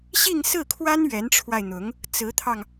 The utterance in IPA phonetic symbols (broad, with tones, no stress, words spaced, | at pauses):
ɕi˥˧ŋsɹ̩˥˩kʰwa˥n ɥɛ˧˥nʈ͡ʂʰwa˧ɪ̯n̪ʊ˧˥ŋ | t͡sɹ̩˧˥t̪ʰɑ˧ŋ